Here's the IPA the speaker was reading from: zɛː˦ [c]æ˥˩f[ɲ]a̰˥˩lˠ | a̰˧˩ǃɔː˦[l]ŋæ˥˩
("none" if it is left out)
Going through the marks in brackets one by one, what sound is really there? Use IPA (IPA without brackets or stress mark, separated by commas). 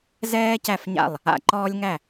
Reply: c, ɲ, lʲ